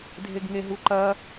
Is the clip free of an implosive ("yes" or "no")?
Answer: yes